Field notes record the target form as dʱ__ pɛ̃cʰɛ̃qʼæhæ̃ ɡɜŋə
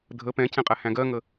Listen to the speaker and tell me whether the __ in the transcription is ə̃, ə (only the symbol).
ə